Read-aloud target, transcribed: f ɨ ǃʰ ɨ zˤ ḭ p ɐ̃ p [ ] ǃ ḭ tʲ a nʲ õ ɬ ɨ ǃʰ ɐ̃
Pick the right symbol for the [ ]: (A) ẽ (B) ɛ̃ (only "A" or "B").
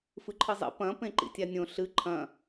A